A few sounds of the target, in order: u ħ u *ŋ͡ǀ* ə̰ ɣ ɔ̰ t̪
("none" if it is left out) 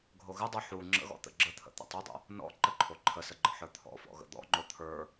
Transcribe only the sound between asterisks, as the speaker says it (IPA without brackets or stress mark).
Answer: ŋ͡ǁ